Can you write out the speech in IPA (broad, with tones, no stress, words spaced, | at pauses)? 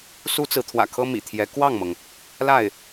su˥t͡sɹ̩˧˥t̪ʰwä̰˨˩kʰɤ˥ mḭ˨˩t̪ʰjɛ˧˥ kwɑ˥˩ŋmɤ˩ŋ | la˥˩ɪ̯